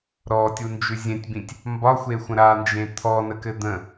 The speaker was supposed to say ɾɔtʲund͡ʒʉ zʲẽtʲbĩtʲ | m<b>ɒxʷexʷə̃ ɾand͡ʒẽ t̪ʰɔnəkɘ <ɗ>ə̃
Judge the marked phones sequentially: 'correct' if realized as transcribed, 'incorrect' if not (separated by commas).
correct, incorrect